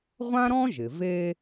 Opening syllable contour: high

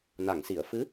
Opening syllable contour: low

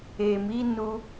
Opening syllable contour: low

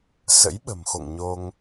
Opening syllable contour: rising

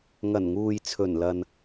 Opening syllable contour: low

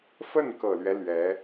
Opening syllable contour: falling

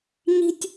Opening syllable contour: high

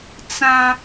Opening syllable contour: high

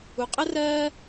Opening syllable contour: high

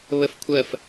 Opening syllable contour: high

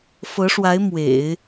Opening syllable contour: rising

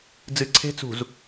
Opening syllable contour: low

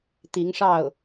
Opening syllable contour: rising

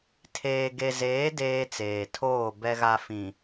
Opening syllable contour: low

